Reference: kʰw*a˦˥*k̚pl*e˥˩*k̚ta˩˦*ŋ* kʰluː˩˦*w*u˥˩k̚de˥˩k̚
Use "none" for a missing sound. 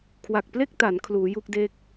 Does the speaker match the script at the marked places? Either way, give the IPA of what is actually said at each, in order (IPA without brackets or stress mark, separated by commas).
a˨˩, e˥˩, n, j